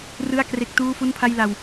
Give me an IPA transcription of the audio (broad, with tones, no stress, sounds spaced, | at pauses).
r ɯ˥˩ a̯ k r e˦˥ k̚ t uː˥˩ f u˥˩ n pʰ a˥˩ j l a˧ w